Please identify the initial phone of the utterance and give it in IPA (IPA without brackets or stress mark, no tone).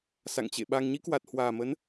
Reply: s